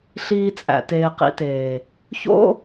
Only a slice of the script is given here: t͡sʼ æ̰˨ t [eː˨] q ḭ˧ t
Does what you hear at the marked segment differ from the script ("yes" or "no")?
yes